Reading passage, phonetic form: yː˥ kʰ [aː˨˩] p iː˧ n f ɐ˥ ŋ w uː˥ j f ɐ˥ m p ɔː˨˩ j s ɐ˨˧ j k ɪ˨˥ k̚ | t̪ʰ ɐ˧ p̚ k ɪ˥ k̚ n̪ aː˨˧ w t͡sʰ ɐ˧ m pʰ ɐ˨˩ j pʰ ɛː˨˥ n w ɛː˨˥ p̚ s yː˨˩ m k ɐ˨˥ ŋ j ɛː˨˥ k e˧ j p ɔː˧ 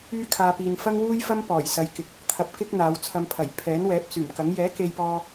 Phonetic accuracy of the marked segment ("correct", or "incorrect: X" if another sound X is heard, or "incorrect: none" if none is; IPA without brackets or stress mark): incorrect: aː˧